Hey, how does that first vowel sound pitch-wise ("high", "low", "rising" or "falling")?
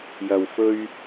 low